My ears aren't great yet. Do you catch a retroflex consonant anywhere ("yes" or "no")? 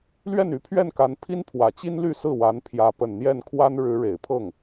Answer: yes